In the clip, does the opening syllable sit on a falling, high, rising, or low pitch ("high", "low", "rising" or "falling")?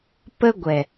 high